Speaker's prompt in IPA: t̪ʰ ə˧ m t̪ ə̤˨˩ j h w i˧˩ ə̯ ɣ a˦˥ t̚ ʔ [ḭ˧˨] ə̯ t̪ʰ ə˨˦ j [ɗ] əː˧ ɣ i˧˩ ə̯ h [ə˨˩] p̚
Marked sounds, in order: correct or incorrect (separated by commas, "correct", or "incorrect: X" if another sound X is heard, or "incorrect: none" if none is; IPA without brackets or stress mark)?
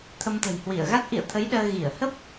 correct, correct, incorrect: ə˦˥